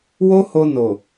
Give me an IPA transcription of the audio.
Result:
w o˦ h o˧ n o˨

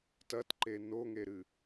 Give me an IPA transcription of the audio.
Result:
t ɐ t ǃ e n o ŋ e ɾ ɨ

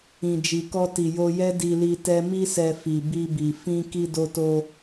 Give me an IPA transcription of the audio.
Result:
ĩ˨ d͡ʒ i˨ k ɔ˧ t i˨ j o˧ j ɛ˦ d i˧ l i˧ t ɛ˦ m i˧ s ɛ˨ f i˨ b i˧ b i˨ f ĩ˧ k i˧ d o˧ t o˧

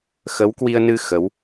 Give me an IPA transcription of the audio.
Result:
x ə˨˦ w k w i˧ ə̯ n ɨ˧ x ə˨˦ w

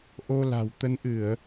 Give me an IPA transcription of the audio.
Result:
ʔ o˧ l a̤˨˩ w t̪ ə˨˦ n ʔ ɨ˧˩˨ ə̯

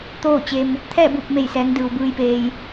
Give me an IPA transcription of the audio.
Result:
t̪ oː˥˨ t͡ɕ e˧ m | t̪ʰ ɛː˥˨ b uː˧˩ p̚ m e˧˩ j s ɛː˩˧ ŋ d ɯː˩ w b ɯː˧ j p eː˧ j

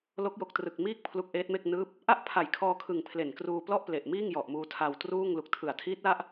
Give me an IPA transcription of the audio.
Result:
l o˦˥ k̚ j o˨˩ k̚ t r ɯ˨˩ k̚ m iː˥˩ k̚ pʰ l u˦˥ k̚ ʔ eː˦˥ t̚ m e˥˩ k̚ n ɯː˦˥ p̚ | ʔ a˥˩ ʔ pʰ a˨˩ j kʰ ɔː˧ kʰ ɯ˨˩ ŋ pʰ l e˨˩ n k r uː˧ p l ɔ˥˩ ʔ p l e˨˩ ʔ m iː˥˩ ŋ j ɔ˨˩ ʔ m uː˧ tʰ a˧ w t r uː˥˩ ŋ l u˨˩ k̚ tʰ ɯ˨˩ a̯ tʰ iː˦˥ t̚ l a˦˥ ʔ

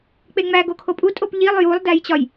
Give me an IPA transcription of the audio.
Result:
k͡p e ŋ͡m æ ɡ o kʰ o pʼ u tʼ o p ʎ i lˠ j u lˠ d æ j t͡ɕ ɒ j

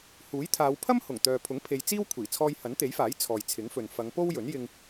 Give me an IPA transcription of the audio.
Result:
h uː˨˥ j t̪ʰ aː˨˧ w pʰ ɐ˥ m h ʊ˨˩ ŋ t̪ œː˨ pʰ ʊ˨˥ ŋ pʰ e˧ j t͡s iː˥ w kʷʰ iː˨˩ t͡sʰ ɔː˧ j h ɐ˨˥ n t̪ e˨˥ j f aː˨˥ j t͡sʰ ɔː˨ j t͡sʰ ɪ˨˥ ŋ f ɵ˨ n f ɐ˨˧ ŋ p o˥ w j ɵ˨˥ n j ɪ˧ ŋ

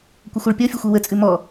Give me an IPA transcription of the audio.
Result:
kʷ ə xʷ æ ɭ pʲ ɔ fʲ ʌ xʷ ɛ w ə t͡sʼ ʉ m ɔ

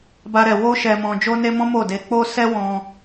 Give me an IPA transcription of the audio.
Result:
b a˦ ɾ ɛ˧ w o˦ ʃ ɛ˧ m ɔ̃˧ d͡ʒ o˦ n e˦ m ɔ̃˦ m o˦˨ d e˧ k͡p o˦ s ɛ˦ w ɔ̃˧

